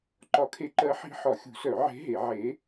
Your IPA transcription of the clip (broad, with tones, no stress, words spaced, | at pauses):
ǃɒ˧˥kʰe˧˥ ǃɜ˧˥ħi̤˧˥ ħɒ˨˩˦xʲṳ˨˩˦sœ˨˩˦ ʕe̤˧˥ɦe˨˩˦ ʕe˧˥